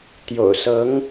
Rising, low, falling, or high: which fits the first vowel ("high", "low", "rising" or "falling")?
low